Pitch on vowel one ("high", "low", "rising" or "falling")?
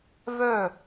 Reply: falling